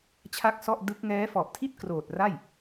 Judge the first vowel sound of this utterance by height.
low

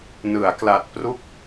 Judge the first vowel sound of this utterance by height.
high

